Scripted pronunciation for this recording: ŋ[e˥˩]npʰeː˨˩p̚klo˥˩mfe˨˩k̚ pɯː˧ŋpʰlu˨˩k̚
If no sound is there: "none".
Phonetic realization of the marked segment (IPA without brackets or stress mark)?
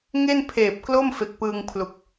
e˥˩